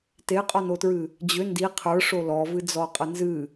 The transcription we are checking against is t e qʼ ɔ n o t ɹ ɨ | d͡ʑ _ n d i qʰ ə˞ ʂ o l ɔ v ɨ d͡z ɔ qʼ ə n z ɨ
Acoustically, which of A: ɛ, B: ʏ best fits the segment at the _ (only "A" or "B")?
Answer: B